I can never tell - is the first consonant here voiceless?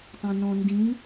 yes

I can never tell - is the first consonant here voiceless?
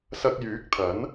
yes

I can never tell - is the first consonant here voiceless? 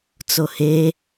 yes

